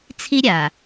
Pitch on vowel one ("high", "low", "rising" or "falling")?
high